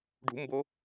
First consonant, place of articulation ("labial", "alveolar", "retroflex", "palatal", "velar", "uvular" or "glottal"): retroflex